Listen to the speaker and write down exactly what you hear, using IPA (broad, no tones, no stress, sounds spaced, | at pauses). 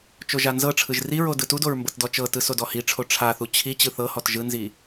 t͡ʃ o ʒ a n z ɤ ʈ͡ʂʰ ɯ ʒ r i ɹ o d ɯ t u d o ɹ m b ɤ t d ɔ t͡ʃ ɤ t ɯ s o d ɔ h i ʈ͡ʂʰ o ʈ͡ʂʰ a θ u t͡ɕʰ i t͡ɕ ɯ θ ɤ h ɔ t ʒ ɯ n z i